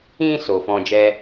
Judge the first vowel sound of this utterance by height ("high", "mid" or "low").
high